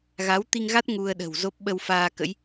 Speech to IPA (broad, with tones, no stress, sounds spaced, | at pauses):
ɣ a˨˦ w t̪ i˧ ŋ ɣ a˦˥ t̚ ŋ u˧ ə̯ ɗ ə̤˨˩ w z o˦˥ p̚ ɓ ə˧ w f aː˧ k ə̰˧˥ j